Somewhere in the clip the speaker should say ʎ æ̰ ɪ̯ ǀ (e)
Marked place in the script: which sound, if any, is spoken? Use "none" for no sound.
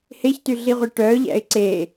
e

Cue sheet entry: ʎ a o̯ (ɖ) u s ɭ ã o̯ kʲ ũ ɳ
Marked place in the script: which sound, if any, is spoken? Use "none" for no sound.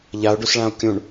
ɖ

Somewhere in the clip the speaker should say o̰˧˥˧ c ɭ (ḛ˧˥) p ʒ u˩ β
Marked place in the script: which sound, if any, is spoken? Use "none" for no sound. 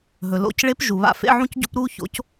e˧˥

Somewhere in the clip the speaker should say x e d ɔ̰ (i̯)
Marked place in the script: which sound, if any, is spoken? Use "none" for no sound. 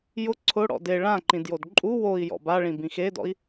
i̯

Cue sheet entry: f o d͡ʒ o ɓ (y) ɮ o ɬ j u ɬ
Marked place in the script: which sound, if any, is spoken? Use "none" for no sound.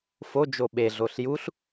e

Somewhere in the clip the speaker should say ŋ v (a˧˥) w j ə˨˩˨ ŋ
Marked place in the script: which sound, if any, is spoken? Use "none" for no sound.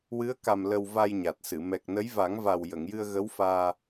a˨˩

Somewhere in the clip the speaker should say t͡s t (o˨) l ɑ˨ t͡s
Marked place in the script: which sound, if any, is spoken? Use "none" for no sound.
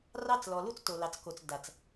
o˨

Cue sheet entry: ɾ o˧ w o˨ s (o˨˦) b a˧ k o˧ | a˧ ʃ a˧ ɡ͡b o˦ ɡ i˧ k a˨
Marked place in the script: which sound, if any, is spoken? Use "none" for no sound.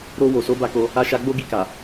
o˨˦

